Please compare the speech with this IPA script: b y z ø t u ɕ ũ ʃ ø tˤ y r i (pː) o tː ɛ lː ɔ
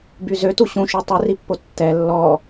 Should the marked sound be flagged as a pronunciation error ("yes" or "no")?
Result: no